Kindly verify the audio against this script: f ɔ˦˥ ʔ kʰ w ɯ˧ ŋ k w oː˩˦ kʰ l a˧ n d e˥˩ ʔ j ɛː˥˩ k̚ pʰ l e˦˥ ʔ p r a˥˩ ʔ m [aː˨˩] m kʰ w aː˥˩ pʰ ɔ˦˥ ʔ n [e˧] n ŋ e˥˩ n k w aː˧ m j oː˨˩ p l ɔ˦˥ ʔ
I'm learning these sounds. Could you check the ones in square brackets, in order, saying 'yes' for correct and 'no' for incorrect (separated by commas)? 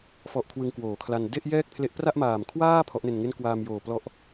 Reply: yes, yes